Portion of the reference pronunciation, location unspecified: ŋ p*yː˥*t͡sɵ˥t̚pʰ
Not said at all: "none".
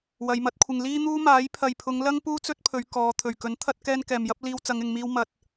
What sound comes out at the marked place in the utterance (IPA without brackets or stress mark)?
uː˥